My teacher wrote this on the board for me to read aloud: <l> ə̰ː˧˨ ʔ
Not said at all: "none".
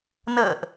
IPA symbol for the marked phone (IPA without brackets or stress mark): n